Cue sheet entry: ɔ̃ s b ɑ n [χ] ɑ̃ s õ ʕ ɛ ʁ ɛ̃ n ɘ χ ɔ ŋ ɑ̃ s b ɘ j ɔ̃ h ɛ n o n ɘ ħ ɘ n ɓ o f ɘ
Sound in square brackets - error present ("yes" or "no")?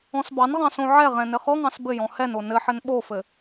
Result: yes